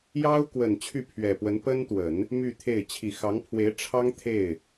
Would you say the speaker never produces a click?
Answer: yes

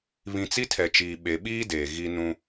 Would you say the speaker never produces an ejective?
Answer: yes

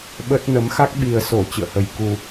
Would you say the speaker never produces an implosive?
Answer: no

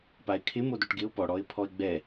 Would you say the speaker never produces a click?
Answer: yes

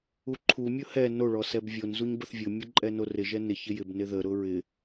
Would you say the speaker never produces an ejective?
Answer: no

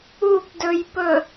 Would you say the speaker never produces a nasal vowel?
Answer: yes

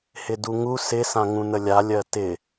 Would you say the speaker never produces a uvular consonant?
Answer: yes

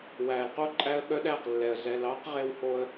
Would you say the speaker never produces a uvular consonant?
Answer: no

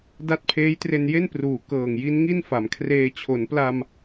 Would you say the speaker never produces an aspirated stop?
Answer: no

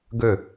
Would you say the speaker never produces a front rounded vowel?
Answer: no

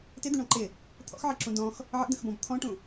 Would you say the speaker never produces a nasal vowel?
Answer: no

